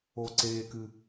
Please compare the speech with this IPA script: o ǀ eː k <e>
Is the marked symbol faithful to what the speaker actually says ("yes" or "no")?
no